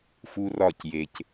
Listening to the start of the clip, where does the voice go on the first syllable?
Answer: high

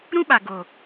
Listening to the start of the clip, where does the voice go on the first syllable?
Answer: high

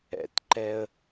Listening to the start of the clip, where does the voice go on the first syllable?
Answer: low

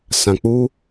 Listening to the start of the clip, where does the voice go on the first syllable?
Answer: low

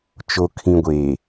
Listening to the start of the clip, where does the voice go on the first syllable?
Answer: low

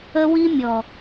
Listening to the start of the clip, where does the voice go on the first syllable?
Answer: high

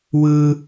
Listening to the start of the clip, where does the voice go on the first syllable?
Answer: high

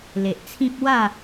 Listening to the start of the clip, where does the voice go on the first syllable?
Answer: low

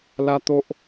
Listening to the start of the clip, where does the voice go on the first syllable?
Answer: high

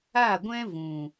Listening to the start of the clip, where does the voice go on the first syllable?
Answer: falling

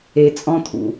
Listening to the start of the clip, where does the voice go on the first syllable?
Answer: low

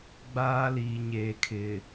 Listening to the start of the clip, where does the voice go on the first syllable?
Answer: high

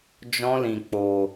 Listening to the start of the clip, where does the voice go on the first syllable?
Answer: high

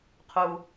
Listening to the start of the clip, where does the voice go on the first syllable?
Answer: low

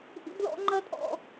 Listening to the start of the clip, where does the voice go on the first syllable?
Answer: high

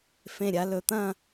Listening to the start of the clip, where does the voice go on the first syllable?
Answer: falling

